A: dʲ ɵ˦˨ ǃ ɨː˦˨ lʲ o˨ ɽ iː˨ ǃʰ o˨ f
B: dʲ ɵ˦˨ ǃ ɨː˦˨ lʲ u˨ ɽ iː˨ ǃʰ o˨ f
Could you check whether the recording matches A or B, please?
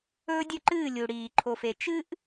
B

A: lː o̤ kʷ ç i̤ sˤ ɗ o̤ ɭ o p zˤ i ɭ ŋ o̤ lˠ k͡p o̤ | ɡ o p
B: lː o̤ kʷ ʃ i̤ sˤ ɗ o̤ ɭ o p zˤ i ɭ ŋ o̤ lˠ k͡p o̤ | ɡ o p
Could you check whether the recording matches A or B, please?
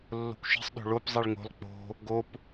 B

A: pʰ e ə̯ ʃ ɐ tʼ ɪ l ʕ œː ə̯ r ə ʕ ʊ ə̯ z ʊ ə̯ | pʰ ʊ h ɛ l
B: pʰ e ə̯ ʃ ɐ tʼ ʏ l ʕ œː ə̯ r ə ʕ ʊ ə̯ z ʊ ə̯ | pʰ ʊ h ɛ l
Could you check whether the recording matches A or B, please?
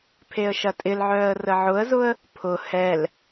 A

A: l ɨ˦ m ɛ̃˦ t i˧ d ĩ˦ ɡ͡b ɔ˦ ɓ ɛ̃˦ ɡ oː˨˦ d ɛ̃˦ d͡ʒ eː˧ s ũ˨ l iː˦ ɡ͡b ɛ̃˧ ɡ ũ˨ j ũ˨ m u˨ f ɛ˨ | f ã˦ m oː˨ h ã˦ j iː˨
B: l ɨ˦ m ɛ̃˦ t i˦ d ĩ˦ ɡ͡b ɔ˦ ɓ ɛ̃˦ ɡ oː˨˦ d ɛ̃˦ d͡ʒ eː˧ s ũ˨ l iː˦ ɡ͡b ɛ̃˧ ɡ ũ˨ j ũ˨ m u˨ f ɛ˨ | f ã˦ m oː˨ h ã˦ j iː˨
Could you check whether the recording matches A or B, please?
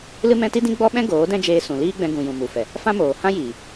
B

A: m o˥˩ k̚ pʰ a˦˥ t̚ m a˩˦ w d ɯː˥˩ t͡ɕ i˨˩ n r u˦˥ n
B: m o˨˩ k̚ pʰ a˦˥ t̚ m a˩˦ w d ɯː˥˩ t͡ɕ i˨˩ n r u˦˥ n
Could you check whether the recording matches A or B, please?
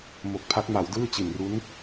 B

